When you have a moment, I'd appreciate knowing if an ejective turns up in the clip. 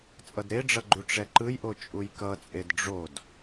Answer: yes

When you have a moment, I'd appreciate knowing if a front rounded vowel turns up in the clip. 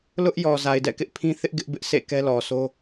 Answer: no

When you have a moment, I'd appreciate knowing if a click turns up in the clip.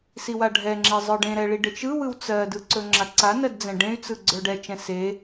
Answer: yes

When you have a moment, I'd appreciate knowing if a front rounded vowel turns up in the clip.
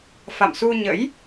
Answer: no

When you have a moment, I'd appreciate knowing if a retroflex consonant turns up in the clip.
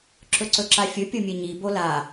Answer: no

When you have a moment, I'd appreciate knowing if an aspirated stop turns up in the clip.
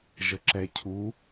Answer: yes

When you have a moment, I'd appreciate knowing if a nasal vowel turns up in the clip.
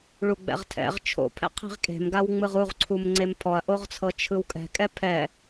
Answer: no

